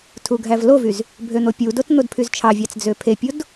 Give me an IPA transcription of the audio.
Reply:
tʰ u ɡʱ æ v l o v y z | bʱ ø n̪ o pʲ u d o t n̪ o d pʰ y z t͡ʃʰ ɑ vʲ ɑ t͡s d͡z ø pʰ e pʲ o d

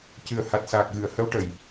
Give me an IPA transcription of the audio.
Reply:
c ɨ˨˩ ə̯ h a˨˩ t̚ s aː˨˩ k̚ ɣ ɨ˨˩˨ ə̯ h ə˧˥ w ʈ ə˨˩˨ j

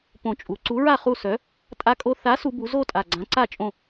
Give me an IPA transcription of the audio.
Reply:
p õ˨˩ t͡ʃʼ u˩˧ ǀ u˨˥ ɹ a˥˨ χ u˥˨ s œ˨˥ | tʼ a˧ kʼ o˧ θ a˨˥ s u˩˧ b u˩˧ z o˥˨ tʼ a˨˩ ɡ͡ǀ ã˨˥ ǀ a˥˨ t͡ʃʼ õ˥˨

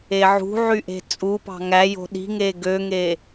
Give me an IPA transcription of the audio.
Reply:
e ʕ ṳ ʕ y ʔ e̤ t͡sʼ u p ɑ̤ ŋ æ j o̤ ɗ i̤ ŋ e ɡ ø ŋ e

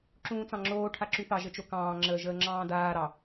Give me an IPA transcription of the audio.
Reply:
ǁ ũː t͡s ɑ̃ ŋ͡ǁ oː ʈʰ a ǁ y θ ɑ ʒ ə t͡ʃ o k ɑ̃ː ŋ͡ǁ əː ʒ əː ŋ͡ǁ ɑ̃ː d aː ɾ ɑ

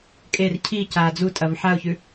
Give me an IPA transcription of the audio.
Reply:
kʼ e r cʰ i c aː d͡z u tʼ ɐ v ħ a ʊ̯ ç ʉ

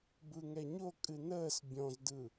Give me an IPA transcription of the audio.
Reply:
b ɯ ŋ ɛ ɲ o kʼ ɨ n əː s bʲ ɔ̃ z d ɯ

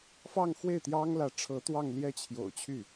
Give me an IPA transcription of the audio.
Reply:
f ɑ˥˧ ŋ x w e˥˩ ɪ̯ t̪ j ɑ˥ ŋ l ä˧˥ ʈ͡ʂʰ ɤ˧˥ t̪ w ɑ˥˧ ŋ l j ɛ˥˩ t͡ɕʰ j o̰˨˩ ʊ̯ t͡ɕʰ y˥˩

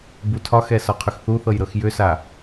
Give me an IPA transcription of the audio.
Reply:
b u tʰ ɒ x ɛ s ɒ qʰ ʏ x θ u θ ɤ j ɾ ɤ x j ʏ s a

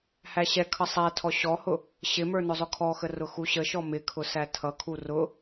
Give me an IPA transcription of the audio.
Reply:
h æ ɕ ɛ kʰ ʌ sˤ æ tʰ ɔ ɕ ɔ h ʊ | ɕ ɪ m ə˞ n ʊ zˤ ʊ kʰ ɔ x ə r ʊ x u ɕ ə ʃ ɔ m ɪ kʰ ʊ s æ tʰ ʌ kʰ u r ʊ

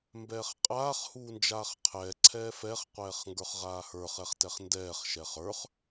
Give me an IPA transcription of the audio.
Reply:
m b ɛː χ qʼ aː χ h uː n d͡ʒ aː χ qʰ ɛː ǀʰ ɛː f ɛ χ qʷ ɛː χ ŋ ɡ ə˞ χ ʁ aː h ə˞ χ ɛ χ t ɛ χ n d ɛː χ ʃ ɛ χ ə˞ χ

